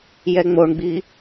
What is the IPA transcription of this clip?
jɛŋ͡moɳɡ͡bi

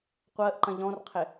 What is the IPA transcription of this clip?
qʷəːʔǃɐ̃ ʎɔ̃rqʰɪ

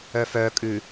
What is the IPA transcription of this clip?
œfœ kʼʉ

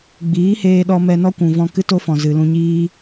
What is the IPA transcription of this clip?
ɡ͡biː˨˦heː˧ɗɔ˧ mɛ˧nɔ˦kʷũ˨ vɔ̃˧ kɨ˦to˦fɔ̃˨ zɨ˨lũ˧ɲiː˦

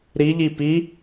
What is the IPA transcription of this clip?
ɾiʎi pi

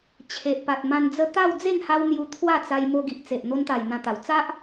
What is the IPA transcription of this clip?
t͡ɕʰe˨ʔpa˨t̚mã˧nd͡zə˦ t̪a˥˧wd͡ze˥˧ŋha˧w n̪ju˧t̪ʰwa˥˧t͡sa˧jmo˧ ɡi˨ʔ t͡se˨ʔ n̪o˧nt̪a˨˩j n̪ã˧t̪a˨˩w t͡sa˦ʔ

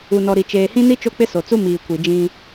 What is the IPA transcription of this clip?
u˨nɔ˨ɾi˨ t͡ʃeː˨hĩ˦ni˦ t͡ʃo˦k͡pɪ˦so˨t͡su˦ miː˨kʷi˨ d͡ʒĩ˦

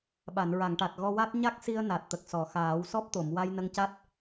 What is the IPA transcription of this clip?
ɓa˨˩˨nɹa˨˩˨ŋʈa˨˩t̚ ɣɔ˧wa˦˥t̚ ɲa˦˥k̚si˧ə̯ na˨˩t̚t̪ə˨˩k̚sɔ˨˩˨xaː˨˩˦w sɔ˦˥p̚t̪o˨˩˨m wa˧jnə˧ŋca˦˥t̚

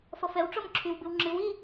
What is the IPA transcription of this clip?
fʌfɛw ʈ͡ʂɔmǁʰyw bɨwŋ͡ǁɨw i

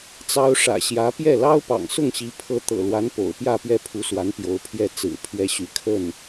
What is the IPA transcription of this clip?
t͡sɑ˥ʊ̯ ʂä̰˨˩ɕjä˧˥ pjɛ˥˩ lɑ˥ʊ̯pɑ̰˨˩ŋsʊ˥˩ŋɕi˧˥ pʰɤ˧˥ t̪ɤ̰˨˩lwa˧˥n po̰˨˩ʊ̯pjä˥˧pɥɛ˥˩ pʰu˧˥swa˧˥n pjo˧˥ʊ̯pʰjɛ˥˩ t͡sɹ̩˨˩ pʰɥɛ˥ɕy˧˥ kʰə˥˩n

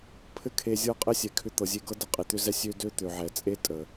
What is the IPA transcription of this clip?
pʰɘ˦kʰe˧zʲɤ˦ qʼɘ˦sʲɛ˨kʰʏ˧ t̪ɤ˨zʲe˧ɡɤ˦də˧ qʼe˧t̪ʏ˦zɛ˦ sʲø˦ dø˦ t̪ø˨ʕɛ˨t͡sʼe˦ tʼə˨

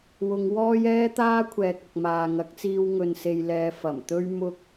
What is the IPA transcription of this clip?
wʊ˨˧ŋwɔː˥j ɛː˥t̪aː˥kʷʰɛː˨k̚ ɐ˨k̚maː˨ ŋɐ˨˥k̚t͡siː˧w ŋɵ˨nse˨jlɛː˨ fɐ˨˩mt̪ɵ˥ɥ mʊ˥k̚

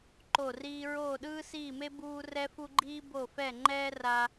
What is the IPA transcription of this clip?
ǃo˥˧riː˥ ɹoː˥˧ɗɯː˥siː˥˧me˥ buː˥ rɛ˥fu˥ɡ͡ǃiː˥ bo˥˧fɛ˥˧ŋ͡ǃɛː˥ ra˥

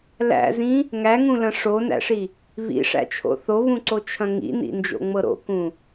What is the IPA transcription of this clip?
læ̰zĩ | ŋæŋũlɐ̃ ʂonæ̰ʂi | βḭʂæ̰t͡ʃʰo̰ θoβũǀot͡ʃʰɐ̃ ŋḭnḭnd͡ʒo̰ŋ͡mɤ ɾo̰kũ

